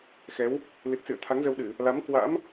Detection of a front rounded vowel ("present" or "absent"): absent